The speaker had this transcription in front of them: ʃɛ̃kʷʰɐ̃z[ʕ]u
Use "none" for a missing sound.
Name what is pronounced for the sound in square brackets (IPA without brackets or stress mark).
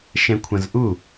ʔ